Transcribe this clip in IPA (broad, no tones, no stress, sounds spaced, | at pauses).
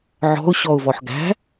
ʕ ɔ̤ ʊ̯ ɕ ɔ ʊ̯ v ɔ ħ ɡ æ̤